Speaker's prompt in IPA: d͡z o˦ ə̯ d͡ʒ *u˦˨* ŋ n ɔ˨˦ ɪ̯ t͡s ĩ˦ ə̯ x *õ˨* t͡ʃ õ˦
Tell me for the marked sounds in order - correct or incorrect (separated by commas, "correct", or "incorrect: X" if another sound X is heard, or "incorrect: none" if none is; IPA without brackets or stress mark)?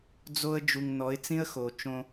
incorrect: u˨, incorrect: o˨